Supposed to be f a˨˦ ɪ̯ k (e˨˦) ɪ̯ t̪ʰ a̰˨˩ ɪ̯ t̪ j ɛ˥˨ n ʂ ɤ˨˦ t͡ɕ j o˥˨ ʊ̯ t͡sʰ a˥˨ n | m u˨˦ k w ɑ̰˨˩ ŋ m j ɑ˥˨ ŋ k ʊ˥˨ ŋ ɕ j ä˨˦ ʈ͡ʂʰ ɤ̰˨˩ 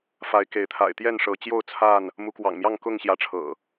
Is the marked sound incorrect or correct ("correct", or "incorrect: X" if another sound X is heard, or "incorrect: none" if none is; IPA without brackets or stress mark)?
correct